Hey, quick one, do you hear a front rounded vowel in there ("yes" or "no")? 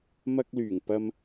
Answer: yes